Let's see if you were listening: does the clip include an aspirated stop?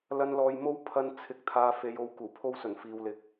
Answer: yes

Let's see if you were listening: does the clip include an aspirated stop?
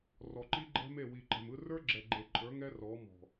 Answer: no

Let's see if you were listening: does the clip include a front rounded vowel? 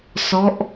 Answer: no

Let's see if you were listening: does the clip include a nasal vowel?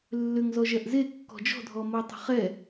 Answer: no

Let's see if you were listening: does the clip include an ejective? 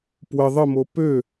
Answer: no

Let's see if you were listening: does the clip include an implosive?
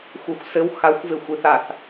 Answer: no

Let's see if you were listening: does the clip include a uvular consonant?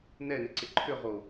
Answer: yes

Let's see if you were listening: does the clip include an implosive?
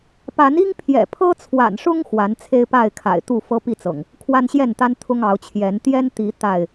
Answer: no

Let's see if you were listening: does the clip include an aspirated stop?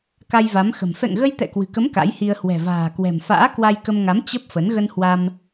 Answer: no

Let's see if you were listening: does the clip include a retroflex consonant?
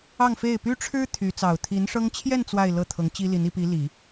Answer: yes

